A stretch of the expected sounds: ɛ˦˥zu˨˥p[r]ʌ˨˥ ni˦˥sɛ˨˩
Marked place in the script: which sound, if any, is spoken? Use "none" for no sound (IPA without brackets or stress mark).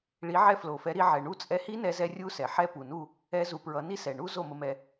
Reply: ɹ